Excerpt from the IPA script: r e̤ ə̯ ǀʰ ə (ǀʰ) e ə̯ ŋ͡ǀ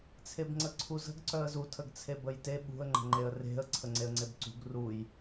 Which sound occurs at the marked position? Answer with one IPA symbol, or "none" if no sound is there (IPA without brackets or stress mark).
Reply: ŋ͡ǀ